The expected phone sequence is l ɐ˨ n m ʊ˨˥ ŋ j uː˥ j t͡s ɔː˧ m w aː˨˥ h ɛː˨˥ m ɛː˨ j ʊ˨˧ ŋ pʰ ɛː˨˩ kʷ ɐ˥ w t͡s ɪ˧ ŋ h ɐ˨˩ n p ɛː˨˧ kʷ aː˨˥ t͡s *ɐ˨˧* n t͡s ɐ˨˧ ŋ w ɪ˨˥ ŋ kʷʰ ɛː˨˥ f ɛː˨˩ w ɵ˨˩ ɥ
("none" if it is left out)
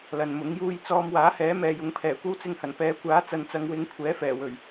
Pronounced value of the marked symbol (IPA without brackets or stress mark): ɐ˨